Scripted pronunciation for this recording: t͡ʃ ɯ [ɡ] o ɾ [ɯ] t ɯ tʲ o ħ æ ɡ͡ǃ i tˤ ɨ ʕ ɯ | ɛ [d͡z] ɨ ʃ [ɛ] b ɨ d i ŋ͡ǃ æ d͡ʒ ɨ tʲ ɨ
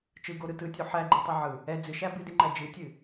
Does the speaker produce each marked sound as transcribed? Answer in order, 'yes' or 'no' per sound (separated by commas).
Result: yes, yes, yes, no